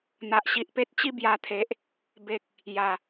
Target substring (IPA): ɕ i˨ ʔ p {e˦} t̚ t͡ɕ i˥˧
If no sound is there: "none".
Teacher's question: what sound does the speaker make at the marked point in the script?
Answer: e˦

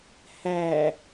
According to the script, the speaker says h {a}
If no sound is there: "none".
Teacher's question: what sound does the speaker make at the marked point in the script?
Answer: æ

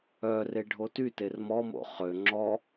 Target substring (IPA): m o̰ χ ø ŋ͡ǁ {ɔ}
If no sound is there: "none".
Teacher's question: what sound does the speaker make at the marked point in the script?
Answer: ɔ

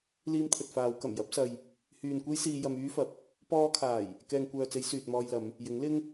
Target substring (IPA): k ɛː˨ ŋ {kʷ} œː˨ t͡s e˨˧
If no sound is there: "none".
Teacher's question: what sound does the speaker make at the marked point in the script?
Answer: kʷ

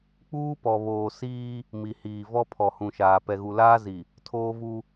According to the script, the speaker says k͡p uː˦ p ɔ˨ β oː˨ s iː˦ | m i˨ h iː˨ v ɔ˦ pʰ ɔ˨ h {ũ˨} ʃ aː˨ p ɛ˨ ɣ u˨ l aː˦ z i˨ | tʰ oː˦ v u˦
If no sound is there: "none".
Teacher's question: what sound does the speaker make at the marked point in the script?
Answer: ũ˨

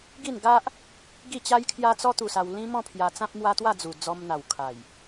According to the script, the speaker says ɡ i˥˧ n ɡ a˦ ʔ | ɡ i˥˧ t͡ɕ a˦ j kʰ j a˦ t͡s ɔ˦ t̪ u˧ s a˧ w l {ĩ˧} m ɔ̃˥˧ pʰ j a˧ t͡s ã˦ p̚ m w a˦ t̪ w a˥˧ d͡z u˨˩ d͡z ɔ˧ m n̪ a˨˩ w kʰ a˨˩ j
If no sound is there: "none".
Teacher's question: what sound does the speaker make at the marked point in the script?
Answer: ĩ˦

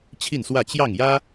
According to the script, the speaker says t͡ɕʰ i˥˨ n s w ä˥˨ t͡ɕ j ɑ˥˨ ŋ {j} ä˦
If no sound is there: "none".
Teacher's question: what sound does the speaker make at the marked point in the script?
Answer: j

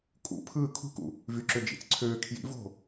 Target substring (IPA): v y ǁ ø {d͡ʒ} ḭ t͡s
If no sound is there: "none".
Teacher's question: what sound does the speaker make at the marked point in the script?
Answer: d͡ʒ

